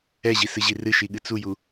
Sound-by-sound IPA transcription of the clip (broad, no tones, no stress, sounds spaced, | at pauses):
ɛ ʑ i s ɨ ʑ i r ɨ ʃ i ɠ ɨ t͡s u j u